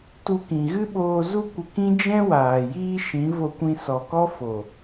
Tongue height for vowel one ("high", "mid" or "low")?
high